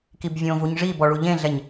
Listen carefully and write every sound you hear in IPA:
k i b vʲ õ v u ɲ ʐ i b ɔ ɭ u ʎ ẽ ɮ ɛ ɲ

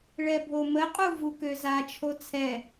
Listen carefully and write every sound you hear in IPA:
ɭ ɛ bʱ o m ə qʼ u v u k ø z a t͡ʃʰ o t͡sʰ ɛ

